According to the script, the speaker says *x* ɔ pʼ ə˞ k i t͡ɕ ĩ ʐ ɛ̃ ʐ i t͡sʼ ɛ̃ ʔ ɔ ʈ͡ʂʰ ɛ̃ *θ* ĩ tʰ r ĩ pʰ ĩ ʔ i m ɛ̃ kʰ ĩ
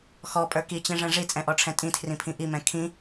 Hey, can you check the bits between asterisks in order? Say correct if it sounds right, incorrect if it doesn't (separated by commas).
correct, incorrect